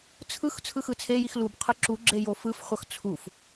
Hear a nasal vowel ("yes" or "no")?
no